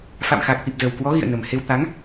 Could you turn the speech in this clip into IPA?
f a̰˧˨ m x aː˨˩ k̚ t̪ i˨˩ p̚ z ə˨˩ w k w ɔ˨˦ ɣ ḭ˧˨ ə̯ n ə˨˩ m h e˧ w t̪ a˨˦ ŋ

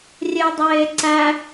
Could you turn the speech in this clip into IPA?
rʲ e dˤ eː ǀ æ

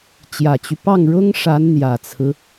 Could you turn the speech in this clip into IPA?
t͡ɕ j ä˨˩ t͡ɕ y˦ p ɑ˥˩ ŋ ɻ ʊ˥ ŋ ʂ a˧˥ n n̪ j ä˨˩ t͡sʰ ɹ̩˦

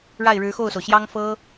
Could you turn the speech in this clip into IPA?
ɻ a˥˩ ɪ̯ ɻ ɻ̩˧˥ x o˥˩ ʊ̯ s o˩ ʊ̯ ɕ j ɑ˥ ŋ f ɤ˥

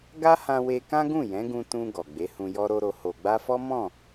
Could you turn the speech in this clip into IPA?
ɡ a˦ h ã˧ w e˧ k ã˦ ɡ ũ˦˨ j ɛ̃˨˦ ɡ ũ˧ t ũ˧ ɡ ɔ˨ ɡ͡b e˨˦ h ũ˧ j ɔ˦ ɾ o˦ ɾ o˧ h o˨ ɡ͡b a˧ f ɔ˦ m ɔ̃˦˨

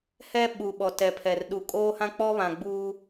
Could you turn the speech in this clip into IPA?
h ɛ˦ ɓ u˨ ɓ ɔ˨ t ɛ˨ pʰ ɛ˨ r ɗ u˨ kʼ oː˦ h ã˦ k͡p ɔ˦ β ã˨ ɡ͡b uː˦

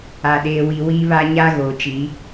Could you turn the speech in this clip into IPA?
a˨ ɗ eː˨ w i˨ w i˦ β a˦ ɲ a˦ ɣ oː˨ t͡ʃ i˨˦

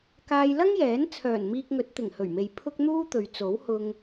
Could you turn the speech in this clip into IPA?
k aː˧ j l ɐ˥ ŋ j ɛː˨˥ n t͡sʰ œː˨˩ n m iː˧ k̚ ŋ ɵ˨˥ t̚ t̪ ɪ˨˩ ŋ h ɵ˨˩ ɥ m e˨ j pʰ ʊ˥ k̚ n̪ uː˥ t̪ ɵ˨ ɥ t͡s o˨˥ w h ʊ˧ ŋ

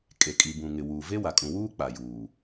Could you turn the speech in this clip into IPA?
kʼ e˨ kʼ i˨ b ũ˨ ŋ ɪ˨ w uː˨ v e˦ w a˨ kʼ ũ˨ w uː˦ k͡p a˨ j uː˨

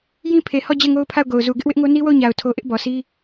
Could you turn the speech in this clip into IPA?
j ĩ˦ pʰ e˨ h ɔ˦˨ d͡ʑ ɛ˦˨ ŋ o˦ ʊ̯ pʰ a˦˨ ʊ̯ ɡ o˨ ʊ̯ z u˨ ɡ ɪ˦ ʔ w ɪ˦ ʔ ŋ o˦ n i˦ w o˦˨ ʊ̯ ɲ a˨ ʊ̯ tʰ o˦ ʔ ɪ˦ ʔ b ɔ˨ s i˦

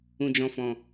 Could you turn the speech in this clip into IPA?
ũ˧ d͡ʒ ɔ̃˧ f ɔ̃˨

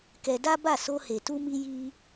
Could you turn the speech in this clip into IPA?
k ɛ˧ d a˦ b a˦˨ s o˧ h e˨ t u˧ m i˧ j i˧

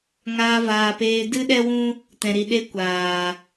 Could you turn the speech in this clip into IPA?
ŋ aː˧ v aː˨ p eː˧ d ɨ˦ ɗ ɛ˦ w ũ˦ | t ɛ̃˨ ɾ i˨ ɗ e˧ kʷ aː˨

